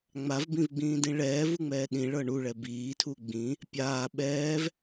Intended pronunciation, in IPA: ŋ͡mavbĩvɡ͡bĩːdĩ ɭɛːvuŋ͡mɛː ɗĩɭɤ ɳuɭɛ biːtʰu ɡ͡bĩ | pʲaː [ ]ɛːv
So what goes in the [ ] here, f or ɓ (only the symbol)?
ɓ